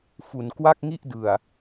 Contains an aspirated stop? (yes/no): no